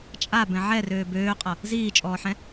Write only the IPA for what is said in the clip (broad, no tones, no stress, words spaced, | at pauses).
t͡ʃʼabɛ̃ ʕɛrøː bøːqʼʌ | ziːt͡ʃʼɔːħɛ̃